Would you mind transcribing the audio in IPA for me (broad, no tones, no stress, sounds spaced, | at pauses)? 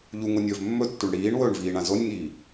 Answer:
ʎ u ŋ o nʲ ɵː v mː ɵ tː u ɳ ɽ iː ɳ w ɵː ɳ v iː ɳ ã z o nʲ ŋ iː